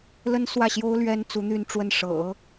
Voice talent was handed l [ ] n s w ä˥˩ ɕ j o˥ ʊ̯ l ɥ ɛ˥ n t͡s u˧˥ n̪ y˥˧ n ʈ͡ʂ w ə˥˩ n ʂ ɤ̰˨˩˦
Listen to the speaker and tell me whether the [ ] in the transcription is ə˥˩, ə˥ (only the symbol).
ə˥